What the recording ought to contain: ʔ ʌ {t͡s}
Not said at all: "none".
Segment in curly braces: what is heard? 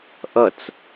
t͡s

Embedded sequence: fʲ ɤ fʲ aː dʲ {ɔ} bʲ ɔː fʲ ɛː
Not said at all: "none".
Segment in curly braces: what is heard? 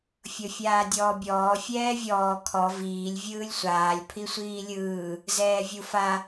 ɔː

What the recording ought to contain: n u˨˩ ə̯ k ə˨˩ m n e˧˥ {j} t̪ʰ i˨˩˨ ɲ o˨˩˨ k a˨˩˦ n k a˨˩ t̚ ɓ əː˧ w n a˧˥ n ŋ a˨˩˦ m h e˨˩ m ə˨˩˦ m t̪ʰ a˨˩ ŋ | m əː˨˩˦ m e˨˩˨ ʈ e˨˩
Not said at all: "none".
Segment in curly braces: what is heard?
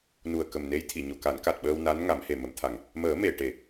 j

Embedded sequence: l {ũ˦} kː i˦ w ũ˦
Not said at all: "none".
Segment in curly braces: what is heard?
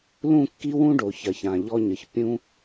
ũ˦˨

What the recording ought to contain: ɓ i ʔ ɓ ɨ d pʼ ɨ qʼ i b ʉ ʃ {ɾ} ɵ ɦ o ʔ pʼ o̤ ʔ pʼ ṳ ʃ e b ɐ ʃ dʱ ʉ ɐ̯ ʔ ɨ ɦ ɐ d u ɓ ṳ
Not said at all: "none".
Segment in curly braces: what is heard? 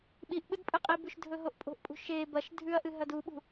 dʱ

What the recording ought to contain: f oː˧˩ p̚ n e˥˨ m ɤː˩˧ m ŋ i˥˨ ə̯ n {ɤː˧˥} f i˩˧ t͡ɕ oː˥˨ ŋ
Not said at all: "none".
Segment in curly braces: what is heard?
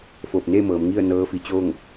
ɤː˧˥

